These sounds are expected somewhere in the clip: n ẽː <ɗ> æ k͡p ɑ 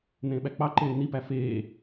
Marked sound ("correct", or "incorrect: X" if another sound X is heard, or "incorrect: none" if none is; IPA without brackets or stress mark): incorrect: ɓ